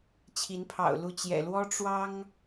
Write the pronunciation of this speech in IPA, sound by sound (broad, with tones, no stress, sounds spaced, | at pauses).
t͡ɕʰ i˨˦ n pʰ ɑ̰˨˩ ʊ̯ l u˥˨ t͡ɕ j ɛ̰˨˩ l w ɔ˦ ʈ͡ʂ w ɑ˦ ŋ